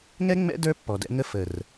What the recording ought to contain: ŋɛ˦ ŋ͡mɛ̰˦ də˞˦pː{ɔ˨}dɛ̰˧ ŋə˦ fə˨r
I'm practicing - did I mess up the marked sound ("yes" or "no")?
no